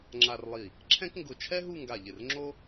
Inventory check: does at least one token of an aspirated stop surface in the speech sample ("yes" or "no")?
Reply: yes